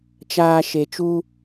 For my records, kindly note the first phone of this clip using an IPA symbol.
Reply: t͡ʃ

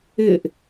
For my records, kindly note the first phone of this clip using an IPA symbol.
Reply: ɪ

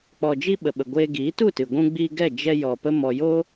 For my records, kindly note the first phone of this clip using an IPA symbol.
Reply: k͡p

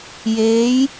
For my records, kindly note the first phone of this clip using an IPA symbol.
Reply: j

